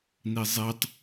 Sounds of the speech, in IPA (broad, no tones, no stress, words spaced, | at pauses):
nizˤetˤ